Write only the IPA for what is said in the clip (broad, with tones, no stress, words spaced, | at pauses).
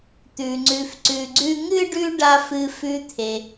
t̪ʉ˩ŋ͡ǀʉ˨f ǀʉ˨ɡ͡ǀʉ˥ ŋɨ˥ɖʉ˦ ɖa˥fɨ˦ fʉ˦t̪ʰe˩